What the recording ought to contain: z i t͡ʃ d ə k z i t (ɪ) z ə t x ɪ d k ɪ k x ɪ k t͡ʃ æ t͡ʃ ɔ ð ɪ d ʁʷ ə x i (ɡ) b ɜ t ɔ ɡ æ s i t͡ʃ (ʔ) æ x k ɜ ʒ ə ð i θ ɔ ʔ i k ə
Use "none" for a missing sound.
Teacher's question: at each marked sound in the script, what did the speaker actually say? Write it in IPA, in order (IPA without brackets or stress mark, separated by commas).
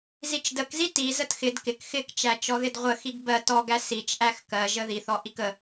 i, ɡ, ʔ